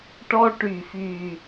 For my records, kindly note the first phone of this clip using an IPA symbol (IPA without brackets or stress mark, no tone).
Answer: ʈ